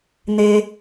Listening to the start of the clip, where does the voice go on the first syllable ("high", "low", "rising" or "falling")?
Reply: low